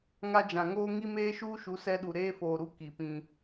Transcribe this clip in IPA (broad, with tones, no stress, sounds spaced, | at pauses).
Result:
ŋ a˦ d͡ʒ ã˨ ŋ oː˦ ŋ i˦ m eː˦ ʃ uː˦ ʃ u˨˦ s ɛ˦ ɗ u˨ ɾ eː˦ f oː˨ ɾ u˦ k i˨ p ĩ˦